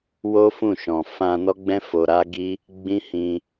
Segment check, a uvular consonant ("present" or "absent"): absent